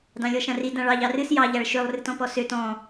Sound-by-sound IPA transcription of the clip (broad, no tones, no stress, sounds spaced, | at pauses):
d ɑ̃ lʲ ɔ ʃ ã r i d ã ɭ ɑ ʎ ɑ r ɨ s j ɑ ʎ a ɭ ʃ ø lˠ r ɨ t ɔ̃ p ɔ s ø t ɔ̃